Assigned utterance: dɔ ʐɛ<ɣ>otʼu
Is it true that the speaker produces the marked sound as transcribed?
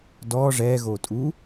yes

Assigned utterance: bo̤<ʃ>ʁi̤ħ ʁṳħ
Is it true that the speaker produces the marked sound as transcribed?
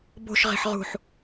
yes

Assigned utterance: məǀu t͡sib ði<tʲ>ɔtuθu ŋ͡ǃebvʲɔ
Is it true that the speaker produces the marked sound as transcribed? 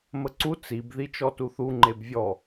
no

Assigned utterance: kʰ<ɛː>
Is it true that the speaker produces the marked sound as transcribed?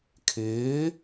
no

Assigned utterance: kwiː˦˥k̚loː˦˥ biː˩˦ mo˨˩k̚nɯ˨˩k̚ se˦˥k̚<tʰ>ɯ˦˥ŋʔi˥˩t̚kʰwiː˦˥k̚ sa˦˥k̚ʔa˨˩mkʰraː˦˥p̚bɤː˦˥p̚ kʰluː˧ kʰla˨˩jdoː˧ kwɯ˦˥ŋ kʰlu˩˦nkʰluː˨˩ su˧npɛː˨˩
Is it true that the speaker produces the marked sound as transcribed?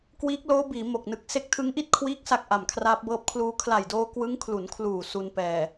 yes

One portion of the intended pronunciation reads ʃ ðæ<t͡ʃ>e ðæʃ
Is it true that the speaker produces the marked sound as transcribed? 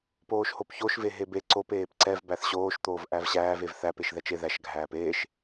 yes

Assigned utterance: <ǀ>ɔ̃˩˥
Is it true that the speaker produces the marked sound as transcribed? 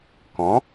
no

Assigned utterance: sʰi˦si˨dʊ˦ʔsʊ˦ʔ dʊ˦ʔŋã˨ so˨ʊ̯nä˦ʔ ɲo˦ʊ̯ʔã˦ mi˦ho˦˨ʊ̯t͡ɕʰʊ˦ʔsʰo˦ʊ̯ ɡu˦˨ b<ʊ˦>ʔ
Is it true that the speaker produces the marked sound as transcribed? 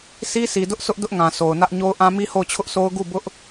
yes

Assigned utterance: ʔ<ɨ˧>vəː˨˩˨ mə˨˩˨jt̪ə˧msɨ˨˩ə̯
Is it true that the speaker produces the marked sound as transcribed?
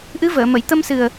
no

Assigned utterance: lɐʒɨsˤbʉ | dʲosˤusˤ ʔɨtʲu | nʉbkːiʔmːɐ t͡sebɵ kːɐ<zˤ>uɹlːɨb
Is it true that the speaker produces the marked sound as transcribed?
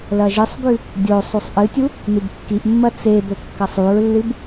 no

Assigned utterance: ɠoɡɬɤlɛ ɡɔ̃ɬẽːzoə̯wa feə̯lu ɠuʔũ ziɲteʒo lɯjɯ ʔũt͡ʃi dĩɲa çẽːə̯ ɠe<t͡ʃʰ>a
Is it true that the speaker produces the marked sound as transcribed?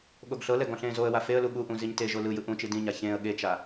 no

